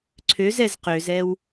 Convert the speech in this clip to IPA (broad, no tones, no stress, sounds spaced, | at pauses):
ǀʰ ø z ɛ z q ø z ɛ w